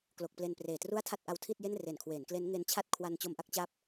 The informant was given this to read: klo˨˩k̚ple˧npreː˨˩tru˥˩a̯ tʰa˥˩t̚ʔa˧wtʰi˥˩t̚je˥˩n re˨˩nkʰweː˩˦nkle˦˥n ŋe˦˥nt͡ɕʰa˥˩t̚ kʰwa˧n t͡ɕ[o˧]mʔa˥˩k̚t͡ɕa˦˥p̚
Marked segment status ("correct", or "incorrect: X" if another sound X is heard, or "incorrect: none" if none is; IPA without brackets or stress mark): correct